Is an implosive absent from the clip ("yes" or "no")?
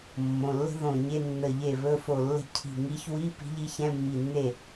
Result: yes